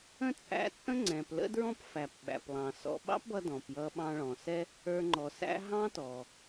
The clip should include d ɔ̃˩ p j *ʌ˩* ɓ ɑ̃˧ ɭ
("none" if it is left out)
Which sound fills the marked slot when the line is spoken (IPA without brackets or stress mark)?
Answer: ʌ˧